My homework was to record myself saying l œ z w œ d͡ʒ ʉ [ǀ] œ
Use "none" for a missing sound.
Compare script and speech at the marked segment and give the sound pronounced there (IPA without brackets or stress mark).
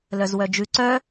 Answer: ǀ